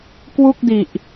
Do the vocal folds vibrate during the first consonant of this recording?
no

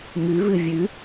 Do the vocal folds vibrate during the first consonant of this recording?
yes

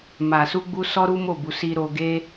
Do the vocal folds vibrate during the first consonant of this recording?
yes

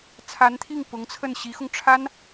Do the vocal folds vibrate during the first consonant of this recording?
no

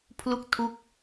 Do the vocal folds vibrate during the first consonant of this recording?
no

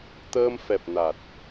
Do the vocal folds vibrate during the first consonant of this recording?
no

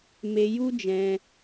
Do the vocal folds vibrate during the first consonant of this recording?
yes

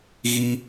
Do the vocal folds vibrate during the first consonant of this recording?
yes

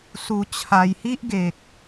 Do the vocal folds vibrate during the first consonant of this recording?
no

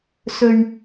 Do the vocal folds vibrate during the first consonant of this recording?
no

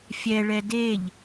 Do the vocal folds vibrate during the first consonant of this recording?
no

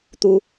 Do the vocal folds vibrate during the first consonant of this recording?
no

